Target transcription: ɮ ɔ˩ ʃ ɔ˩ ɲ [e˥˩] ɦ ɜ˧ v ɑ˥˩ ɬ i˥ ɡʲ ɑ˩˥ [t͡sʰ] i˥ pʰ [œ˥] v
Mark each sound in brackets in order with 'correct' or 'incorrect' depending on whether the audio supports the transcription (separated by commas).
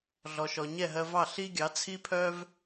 incorrect, correct, correct